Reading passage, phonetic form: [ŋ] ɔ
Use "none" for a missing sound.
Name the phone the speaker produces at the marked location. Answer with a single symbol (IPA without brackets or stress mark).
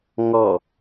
ŋ